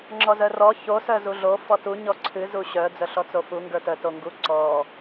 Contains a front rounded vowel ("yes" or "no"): yes